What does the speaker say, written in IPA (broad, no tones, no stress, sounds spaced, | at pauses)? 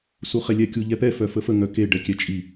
s u χ e lʲ ɛ kʲ u ʎ ɛ p ɛ f œ f ə f ə ŋ œ k e ɖ ɛ kʲ ɛ t͡ʃʼ i